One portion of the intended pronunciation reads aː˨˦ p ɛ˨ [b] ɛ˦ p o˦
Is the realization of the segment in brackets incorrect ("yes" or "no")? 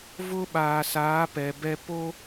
no